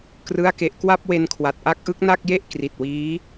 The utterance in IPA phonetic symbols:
k r ɯ˥˩ a̯ k e˦˥ ʔ k w a˥˩ p̚ w e˧ n kʰ w a˨˩ t̚ ʔ a˦˥ k̚ ʔ ɯ˦˥ k̚ n a˥˩ k̚ j e˥˩ ʔ k r i˨˩ t̚ w iː˦˥

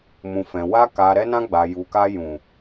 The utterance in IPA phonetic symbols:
m ũ˨ f ɛ̃˨ w a˧ k a˨ ɾ ɛ˧ n ã˧ ɡ͡b a˨ j u˨ k a˧ j ũ˨

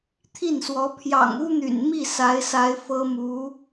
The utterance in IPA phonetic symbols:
t̪ʰ i˥˩ n s w ɔ˧˥ pʰ j ɑ̰˨˩ ŋ u˥ n̪ y̰˨˩ n m i˥˩ s a˧˥ ɪ̯ s a˧˥ ɪ̯ f ɤ˥ m u˧˥

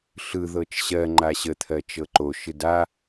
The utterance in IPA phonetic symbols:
ɬ ɯ ð ɤ t͡ʃ ɕ ɜ ŋ͡ǃ a ɕ ə t̪ʰ ɜ t͡ʃ ɤ ǃ o ʃ ɯ d a

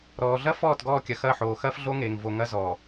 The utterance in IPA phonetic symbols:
ɾ ɔː˨ ɮ ɐ˦ f ɔː˦˨ t ɡ ɔː˦˨ kʲ ɐ˨ x ɐ˦˨ ħ oː˨ x ɐː˦ f ɮ o˦ ŋ eː˨ ŋ v o˨ ŋ ɐ˦ z ɔː˨

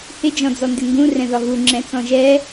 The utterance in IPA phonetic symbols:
h ɪ d͡ʒ ɔ̃ d͡z ɔ n d ɪ ŋ ɡ ũ r ɛ̃ ð ɒ ɣ u ŋ͡ǁ ɛ̃ t͡s ɔ̃ ʒ ɛ

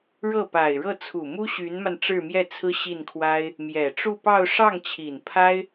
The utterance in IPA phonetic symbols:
ɻ ɤ˥˩ p a˨˩ ɪ̯ ɻ ɤ˥˩ t͡sʰ u˨˩ m u˥ ɕ y˧˥ n m a˧ n ʈ͡ʂ ɻ̩˥˧ m j ɛ˥˩ t͡sʰ ɹ̩˥ ɕ i˥˩ n kʰ w a˥ ɪ̯ | m j ɛ˨˩ ʈ͡ʂ u˥˧ p ɑ˥˧ ʊ̯ ʂ ɑ˥˩ ŋ t͡ɕʰ i˨˩ n pʰ a˥ ɪ̯

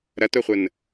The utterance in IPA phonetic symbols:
ɾ ɐ t ʊ χʷ ə n

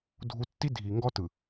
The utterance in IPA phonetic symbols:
dʱ u˨ tː i˦ dʱ i˨ ŋ ɡ ɔ˦ t ɯ˨

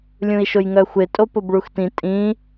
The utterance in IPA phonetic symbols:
lʲ ũ i̯ ʃ ʊ j ŋ œ xʷ ɪ tʼ o p ʊ b ɭ u x t ĩ tʼ ĩ

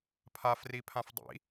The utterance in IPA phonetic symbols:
pʰ a f r i pʰ ã f dˤ ḭ

